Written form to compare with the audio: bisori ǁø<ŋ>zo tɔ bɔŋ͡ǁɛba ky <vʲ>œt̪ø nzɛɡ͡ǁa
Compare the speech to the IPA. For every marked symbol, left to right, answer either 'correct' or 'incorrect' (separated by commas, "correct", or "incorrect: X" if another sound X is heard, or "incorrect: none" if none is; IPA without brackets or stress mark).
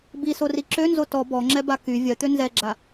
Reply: incorrect: n, correct